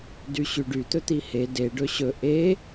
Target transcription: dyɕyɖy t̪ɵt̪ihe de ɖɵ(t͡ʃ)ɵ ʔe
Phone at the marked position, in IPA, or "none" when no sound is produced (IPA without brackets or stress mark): ɕ